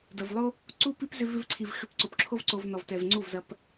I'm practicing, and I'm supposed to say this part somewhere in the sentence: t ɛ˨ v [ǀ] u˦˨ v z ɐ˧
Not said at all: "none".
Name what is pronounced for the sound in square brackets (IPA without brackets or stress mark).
ŋ͡ǀ